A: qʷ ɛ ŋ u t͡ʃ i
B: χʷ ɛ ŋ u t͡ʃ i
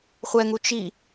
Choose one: B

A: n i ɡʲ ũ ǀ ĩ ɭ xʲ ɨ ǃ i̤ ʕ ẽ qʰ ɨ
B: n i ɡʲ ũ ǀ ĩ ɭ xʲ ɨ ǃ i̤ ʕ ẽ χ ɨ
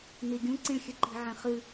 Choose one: B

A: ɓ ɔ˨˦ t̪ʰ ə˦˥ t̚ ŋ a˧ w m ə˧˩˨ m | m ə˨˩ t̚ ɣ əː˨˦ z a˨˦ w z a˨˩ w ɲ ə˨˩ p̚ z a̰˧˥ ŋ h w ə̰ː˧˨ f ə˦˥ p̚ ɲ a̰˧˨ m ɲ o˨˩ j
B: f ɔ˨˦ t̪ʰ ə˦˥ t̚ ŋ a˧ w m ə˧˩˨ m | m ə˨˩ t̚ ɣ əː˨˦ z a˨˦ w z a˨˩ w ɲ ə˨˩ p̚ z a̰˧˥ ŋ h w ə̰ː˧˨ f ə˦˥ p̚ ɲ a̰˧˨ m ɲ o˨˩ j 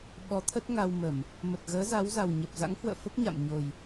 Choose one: A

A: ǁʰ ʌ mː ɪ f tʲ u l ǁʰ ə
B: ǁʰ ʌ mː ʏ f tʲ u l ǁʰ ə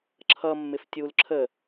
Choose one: A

